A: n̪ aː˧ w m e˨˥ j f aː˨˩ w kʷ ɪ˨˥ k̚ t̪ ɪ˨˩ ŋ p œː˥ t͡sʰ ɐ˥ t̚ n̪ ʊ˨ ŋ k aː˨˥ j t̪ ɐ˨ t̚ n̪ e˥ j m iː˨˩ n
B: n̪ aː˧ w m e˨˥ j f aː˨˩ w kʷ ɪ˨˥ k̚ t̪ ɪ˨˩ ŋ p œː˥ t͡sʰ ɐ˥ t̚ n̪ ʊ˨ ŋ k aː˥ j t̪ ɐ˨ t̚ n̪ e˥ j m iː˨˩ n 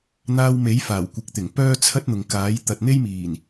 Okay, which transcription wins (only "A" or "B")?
A